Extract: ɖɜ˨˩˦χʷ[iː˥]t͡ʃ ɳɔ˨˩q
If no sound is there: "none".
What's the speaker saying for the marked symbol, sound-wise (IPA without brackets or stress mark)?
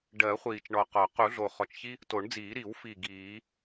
iː˨˩